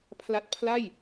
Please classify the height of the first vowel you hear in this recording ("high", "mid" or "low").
low